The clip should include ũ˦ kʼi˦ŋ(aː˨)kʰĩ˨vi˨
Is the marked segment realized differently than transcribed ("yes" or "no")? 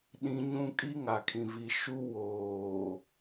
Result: yes